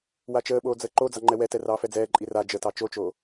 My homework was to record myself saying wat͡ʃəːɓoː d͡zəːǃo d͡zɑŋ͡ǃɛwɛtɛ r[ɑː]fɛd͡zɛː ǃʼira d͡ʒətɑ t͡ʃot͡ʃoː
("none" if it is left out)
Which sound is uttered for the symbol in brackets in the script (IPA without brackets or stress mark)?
ɑː